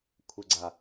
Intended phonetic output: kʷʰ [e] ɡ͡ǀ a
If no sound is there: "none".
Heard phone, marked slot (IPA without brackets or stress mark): e